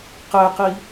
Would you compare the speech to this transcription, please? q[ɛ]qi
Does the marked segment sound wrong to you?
no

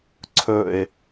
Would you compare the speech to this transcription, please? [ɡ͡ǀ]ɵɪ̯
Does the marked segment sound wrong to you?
yes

